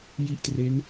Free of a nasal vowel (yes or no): yes